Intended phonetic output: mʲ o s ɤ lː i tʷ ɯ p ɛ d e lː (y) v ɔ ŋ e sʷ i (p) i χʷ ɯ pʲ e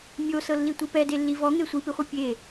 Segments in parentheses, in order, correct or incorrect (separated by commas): incorrect, correct